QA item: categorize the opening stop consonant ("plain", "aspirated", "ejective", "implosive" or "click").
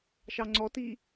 click